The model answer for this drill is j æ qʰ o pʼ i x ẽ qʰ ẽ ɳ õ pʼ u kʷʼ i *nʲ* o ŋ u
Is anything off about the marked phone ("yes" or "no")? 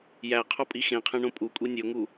no